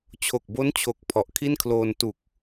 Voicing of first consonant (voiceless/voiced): voiceless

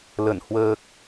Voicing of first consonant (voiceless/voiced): voiced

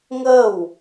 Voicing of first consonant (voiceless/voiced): voiced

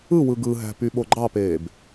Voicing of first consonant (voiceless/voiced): voiced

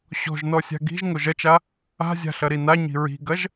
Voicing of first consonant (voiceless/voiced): voiceless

